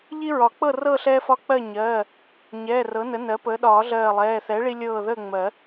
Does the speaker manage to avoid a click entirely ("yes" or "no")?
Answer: yes